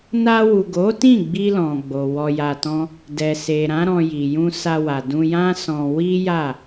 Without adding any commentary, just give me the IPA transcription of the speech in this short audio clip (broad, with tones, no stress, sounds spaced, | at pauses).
n a˧ w u˨ ɡ o˨˦ t ĩ˦˨ ɡ͡b i˧ l ɔ̃˨ ɡ͡b o˨ w ɔ˧ j a˧ t ɔ̃˦ | d ɛ˨ s e˨ ɾ ã˨˦ ɾ ɔ̃˧ j i˨ j ũ˧ s a˧ w a˨ d ũ˧ j ã˦ s ɔ̃˧ w i˦ j a˦˨